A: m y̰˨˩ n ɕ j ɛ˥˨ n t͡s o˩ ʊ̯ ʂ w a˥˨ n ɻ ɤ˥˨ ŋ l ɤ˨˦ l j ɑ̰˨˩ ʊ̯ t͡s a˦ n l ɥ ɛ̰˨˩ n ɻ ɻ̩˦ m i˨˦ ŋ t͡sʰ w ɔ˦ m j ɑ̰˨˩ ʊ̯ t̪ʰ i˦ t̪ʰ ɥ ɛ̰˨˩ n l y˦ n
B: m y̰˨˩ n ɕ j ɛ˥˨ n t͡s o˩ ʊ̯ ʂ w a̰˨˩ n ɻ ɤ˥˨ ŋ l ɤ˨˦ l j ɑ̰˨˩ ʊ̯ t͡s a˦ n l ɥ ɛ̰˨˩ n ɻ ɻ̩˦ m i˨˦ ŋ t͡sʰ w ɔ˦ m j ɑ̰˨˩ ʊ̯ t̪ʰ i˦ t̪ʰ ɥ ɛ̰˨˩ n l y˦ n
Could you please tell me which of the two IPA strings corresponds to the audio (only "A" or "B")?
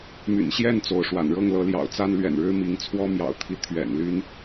B